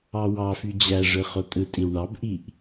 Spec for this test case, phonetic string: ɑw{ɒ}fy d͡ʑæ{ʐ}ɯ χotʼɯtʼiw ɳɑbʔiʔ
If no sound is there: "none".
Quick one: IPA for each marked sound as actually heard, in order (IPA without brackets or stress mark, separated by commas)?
ɑ, ʐ